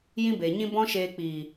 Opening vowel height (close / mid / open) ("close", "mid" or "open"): close